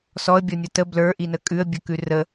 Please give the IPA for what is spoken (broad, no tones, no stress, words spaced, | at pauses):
sɔə̯bʲɔnʲɔ tə blə˞ʔinə kʼʉə̯bʲə˞kʉ rə